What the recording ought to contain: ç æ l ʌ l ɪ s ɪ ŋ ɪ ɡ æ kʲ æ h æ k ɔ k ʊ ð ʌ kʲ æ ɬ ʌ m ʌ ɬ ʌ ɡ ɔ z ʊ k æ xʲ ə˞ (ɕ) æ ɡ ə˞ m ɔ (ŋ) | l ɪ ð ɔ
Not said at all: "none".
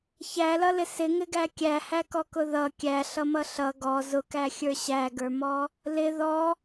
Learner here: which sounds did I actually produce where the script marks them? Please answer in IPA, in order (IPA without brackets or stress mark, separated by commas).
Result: ɕ, none